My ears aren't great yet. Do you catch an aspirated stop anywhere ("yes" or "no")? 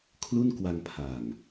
yes